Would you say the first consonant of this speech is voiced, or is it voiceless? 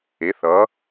voiceless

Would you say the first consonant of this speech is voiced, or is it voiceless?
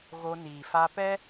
voiced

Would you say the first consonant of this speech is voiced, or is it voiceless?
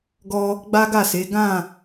voiced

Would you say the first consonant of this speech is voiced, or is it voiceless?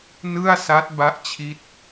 voiced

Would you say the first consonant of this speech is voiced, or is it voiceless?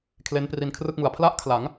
voiceless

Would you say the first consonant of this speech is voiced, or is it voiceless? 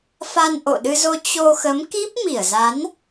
voiceless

